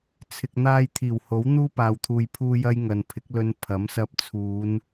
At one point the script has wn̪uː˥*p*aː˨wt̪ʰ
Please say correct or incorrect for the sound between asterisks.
correct